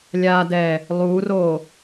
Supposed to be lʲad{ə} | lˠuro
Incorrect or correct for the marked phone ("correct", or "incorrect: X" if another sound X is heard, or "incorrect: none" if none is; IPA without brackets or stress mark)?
incorrect: ɛ